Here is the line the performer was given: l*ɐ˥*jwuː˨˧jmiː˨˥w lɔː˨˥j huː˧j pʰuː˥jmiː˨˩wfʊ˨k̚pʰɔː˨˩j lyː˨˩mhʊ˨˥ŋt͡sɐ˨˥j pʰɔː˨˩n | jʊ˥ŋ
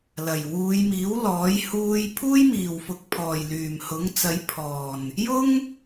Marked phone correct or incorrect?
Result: incorrect